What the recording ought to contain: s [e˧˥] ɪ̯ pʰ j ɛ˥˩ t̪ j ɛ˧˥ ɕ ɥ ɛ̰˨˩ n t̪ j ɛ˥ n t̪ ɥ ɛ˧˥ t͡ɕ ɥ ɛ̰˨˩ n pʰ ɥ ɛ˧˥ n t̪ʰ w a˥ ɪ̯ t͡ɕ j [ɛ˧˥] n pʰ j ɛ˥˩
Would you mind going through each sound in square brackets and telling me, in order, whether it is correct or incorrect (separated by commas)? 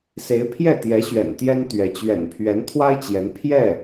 correct, correct